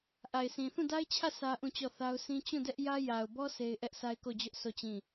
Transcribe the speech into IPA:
ʔ a˨ ɪ̯ sʰ ĩ˨ θ ũ˦˨ d a˦ ɪ̯ t͡ɕʰ ä˦˨ s ä˦ ʔ ũ˦˨ t͡ɕ ɔ˦˨ θ a˦ ʊ̯ sʰ ĩ˦ t͡ɕ ũ˦˨ d ɛ˦ ʔ j ä˦ j a˨ ʊ̯ b ɔ˦ sʰ e˦ ɪ̯ ʔ ɛ˦ ʔ s a˦ ɪ̯ k o˦˨ d͡ʑ ʊ˦ ʔ s o˦˨ t͡ɕ ĩ˦˨

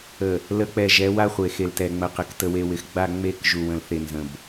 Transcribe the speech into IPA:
ə˨ | l ə˨˦ k͡p ɛ˨ ʒ ɛ˨˦ w a˦ χʷ e˨ x e˨ l t ɛ˨ ŋ͡m ə˨ q ɪ˨ k t ə˨ w e˨ w ɪ˨ x ɡ͡b a˦˨ ŋ͡m e˦˨ k ʒ u˨ w ə̃˨ l θ e˨ n z ə̃˨ b

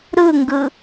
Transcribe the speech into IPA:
ɾ ɯ ŋ ɡ ɯ

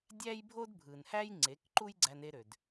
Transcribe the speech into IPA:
dʲ æ˦ j bʱ o˦ d bʱ ɯ˨ n h æ˦ j ŋ͡ǀ e˨˦ k ǃ u˦ j ɡ͡ǀ æ˧ n e˧ ɾ ø˨ d

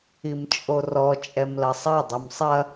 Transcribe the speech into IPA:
i m t͡ʃʼ o r ɔ t͡ʃʼ ɛ m l ɐ sˤ ɐ dˤ u m sˤ ɐ

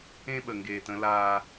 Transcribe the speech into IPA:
ẽ˦ ɓ ə˨ ŋ ɡ eː˨ t ə̃˦ l aː˦

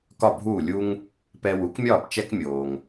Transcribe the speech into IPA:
k ɒ˥˩ bʱ uː˥˩ lʲ u˥ ŋ | p ɛ˧ w u˩˥ k mʲ ɒː˥˩ p t͡ʃ ɛ˥ k mʲ oː˩ ŋ

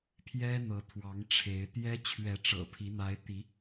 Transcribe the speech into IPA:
pʰ j ɛ˦ n̪ ɤ˨˦ t̪ʰ w ɑ˨˦ ŋ ʈ͡ʂʰ e˨˦ ɪ̯ t̪ j ɛ˦ t͡ɕʰ ɥ ɛ˨˦ ʈ͡ʂ ɤ̰˨˩ pʰ i˨˦ n̪ a˨˦ ɪ̯ t̪ i˨˦

